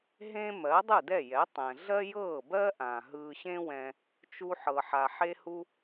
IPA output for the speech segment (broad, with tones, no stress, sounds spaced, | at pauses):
ɦ ẽ˥ m ɜ˩˥ dˤ ɯ˥˩ d ɛ˥˩ j ɛ˩˥ tˤ ɛ̃˩ ɮ ɜ˥ j ɤː˥˩ b ɜ˥ ʔ ã˩ ɦ ɯː˧ ɕ ẽ˥ w ɛ̃˧ | t͡ʃ u˧ ħ ɤ˩ ħ a˩ ħ e˧ h u˧